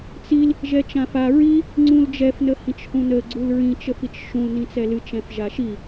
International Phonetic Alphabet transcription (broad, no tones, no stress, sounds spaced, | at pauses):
t͡s i l | ʒ ɛ t͡ʃ ã f a ɹ i | ŋ͡ǀ ũ l d͡ʒ ɛ f n ə h ĩ t͡ʃ h ũ n ə ɡ͡ǀ u l ɹ ĩ t͡ʃ ə f i t͡ʃ ʃ ũ l n ĩ t͡s ɛ l ɨ t͡ʃ ɛ̃ f ʒ a ʃ i